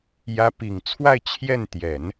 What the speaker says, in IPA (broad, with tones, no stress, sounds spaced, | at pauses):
j ä˧˥ p i˨˩ ŋ t͡sʰ w a˥˧ ɪ̯ t͡ɕʰ j ɛ˥˩ n t̪ j ɛ˨˩˦ n